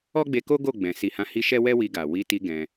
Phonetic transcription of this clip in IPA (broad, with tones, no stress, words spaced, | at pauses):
ɔ˦ɡ͡be˧ko˦ ɡo˦˨ɡ͡bɛ̃˨ si˨hã˨˦hi˧ ʃɛ˦wɛ˦wi˧ɡa˨ wi˨˦ti˧ ɡɛ̃˧